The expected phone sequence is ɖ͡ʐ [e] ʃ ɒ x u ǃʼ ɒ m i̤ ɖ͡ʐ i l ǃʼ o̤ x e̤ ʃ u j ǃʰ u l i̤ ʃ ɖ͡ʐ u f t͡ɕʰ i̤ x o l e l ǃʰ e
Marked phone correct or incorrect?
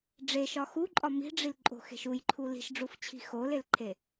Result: correct